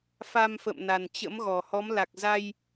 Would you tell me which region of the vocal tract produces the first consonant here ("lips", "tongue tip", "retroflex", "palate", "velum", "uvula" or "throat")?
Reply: lips